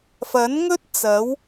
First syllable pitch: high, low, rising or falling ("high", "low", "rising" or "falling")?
rising